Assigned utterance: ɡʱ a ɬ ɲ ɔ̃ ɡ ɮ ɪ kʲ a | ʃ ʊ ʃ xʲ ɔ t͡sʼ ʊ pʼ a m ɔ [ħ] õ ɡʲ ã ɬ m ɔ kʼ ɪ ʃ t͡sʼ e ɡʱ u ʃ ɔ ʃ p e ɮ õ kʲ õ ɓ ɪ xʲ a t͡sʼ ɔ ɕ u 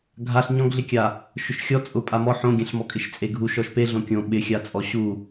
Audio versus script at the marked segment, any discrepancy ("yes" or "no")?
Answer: no